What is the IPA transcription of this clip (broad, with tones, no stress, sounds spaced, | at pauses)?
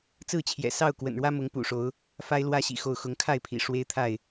t͡s ɹ̩˥˨ t͡ɕʰ j ɛ̰˨˩ s ɑ˥˨ ʊ̯ k w ə̰˨˩ n ɻ w ä˦ m ʊ˨˦ ŋ p ṵ˨˩ ʂ o˨˦ ʊ̯ | f a˦ ɪ̯ l w ä˦ ɕ ḭ˨˩ x o˥˨ ʊ̯ x ʊ˨˦ ŋ kʰ a˥˨ ɪ̯ pʰ ḭ˨˩ ʂ w e˦ ɪ̯ t̪ʰ a˥˨ ɪ̯